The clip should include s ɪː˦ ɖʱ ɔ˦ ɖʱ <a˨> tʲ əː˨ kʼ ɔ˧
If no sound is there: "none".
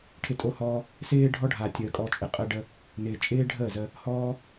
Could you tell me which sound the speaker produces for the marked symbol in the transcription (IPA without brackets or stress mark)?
a˨